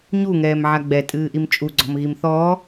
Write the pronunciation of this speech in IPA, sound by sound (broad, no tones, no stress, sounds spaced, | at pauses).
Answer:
ɲ u ŋ ɛː m ʕ a ɡ͡b ɛ tʼ ɨː ʔ i m t͡ʃʼ u ɡ͡ǀ ɔ̤ m ɣ i m θ ɔː